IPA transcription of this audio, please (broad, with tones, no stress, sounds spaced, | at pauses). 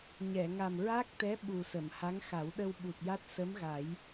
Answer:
ɲ ɛ˨˩˨ ŋ a˨˩ m ɹ a˦˥ k̚ t̪ ɛ˧˥ ɓ u˨˩ s ə˨˩˨ m h a˧˥ ŋ x a˨˩˦ w ɗ ə˧ w ɓ u˨˩ t̚ j a˦˥ t̚ s ə˧˥ m ɣ a˨˩˦ j